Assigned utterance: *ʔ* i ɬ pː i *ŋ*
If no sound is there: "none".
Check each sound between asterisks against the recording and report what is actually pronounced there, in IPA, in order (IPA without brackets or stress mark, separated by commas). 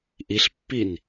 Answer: ʔ, n